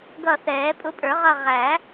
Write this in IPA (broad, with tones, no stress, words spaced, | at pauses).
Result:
ɡʌ˦˨ θɛː˨˩˦pʼʊ˧˥pʼə˞˨˩˦ʁʌ˦˨ ʁæ˨˩˦